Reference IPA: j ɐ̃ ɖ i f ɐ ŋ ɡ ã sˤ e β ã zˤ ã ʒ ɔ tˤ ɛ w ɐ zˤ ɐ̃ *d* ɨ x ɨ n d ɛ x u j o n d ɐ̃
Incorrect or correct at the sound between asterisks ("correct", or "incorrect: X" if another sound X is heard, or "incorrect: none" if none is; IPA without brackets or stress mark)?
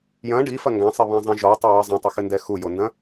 incorrect: tˤ